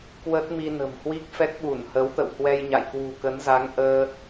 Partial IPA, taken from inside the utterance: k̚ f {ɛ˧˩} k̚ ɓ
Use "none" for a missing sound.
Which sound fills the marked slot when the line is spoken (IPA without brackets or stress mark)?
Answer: ɛ˦˥